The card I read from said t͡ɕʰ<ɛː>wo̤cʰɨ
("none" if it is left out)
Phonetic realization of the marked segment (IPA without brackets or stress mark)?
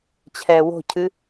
ɛː